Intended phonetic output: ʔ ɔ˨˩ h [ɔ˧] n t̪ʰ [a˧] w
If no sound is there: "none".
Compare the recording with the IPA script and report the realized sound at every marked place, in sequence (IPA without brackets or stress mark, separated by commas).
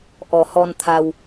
ɔ˧, a˧